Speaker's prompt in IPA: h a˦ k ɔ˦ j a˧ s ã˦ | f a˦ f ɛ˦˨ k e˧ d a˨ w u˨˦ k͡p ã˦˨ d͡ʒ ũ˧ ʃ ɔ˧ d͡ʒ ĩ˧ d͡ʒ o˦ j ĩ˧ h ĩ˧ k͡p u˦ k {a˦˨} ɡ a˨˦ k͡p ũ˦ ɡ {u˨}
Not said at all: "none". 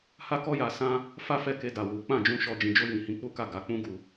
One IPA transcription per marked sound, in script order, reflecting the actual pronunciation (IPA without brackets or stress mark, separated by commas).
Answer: a˦˨, u˧